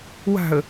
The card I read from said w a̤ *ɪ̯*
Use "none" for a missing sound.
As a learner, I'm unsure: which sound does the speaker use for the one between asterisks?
ə̯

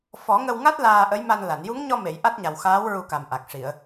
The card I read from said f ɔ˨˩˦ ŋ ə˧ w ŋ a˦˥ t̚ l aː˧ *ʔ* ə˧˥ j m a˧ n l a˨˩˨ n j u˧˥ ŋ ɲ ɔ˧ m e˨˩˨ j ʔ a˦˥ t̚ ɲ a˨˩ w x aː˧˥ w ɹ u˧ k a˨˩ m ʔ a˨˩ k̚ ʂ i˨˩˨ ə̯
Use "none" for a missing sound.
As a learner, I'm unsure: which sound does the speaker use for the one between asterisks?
ʔ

